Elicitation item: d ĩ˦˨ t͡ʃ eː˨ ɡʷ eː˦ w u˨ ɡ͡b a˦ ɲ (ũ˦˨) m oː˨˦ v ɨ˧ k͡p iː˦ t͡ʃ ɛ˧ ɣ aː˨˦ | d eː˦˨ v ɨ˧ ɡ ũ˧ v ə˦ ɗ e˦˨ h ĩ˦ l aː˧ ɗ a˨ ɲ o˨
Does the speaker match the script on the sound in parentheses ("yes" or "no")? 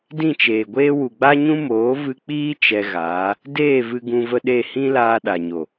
no